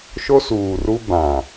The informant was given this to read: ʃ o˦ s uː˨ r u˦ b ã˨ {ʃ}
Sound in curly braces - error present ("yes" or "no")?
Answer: yes